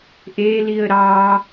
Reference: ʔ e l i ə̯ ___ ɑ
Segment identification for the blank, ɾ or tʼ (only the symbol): ɾ